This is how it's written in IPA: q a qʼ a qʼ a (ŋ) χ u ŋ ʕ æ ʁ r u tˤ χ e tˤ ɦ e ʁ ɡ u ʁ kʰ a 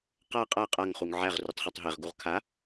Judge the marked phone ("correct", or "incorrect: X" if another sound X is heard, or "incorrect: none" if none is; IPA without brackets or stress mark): correct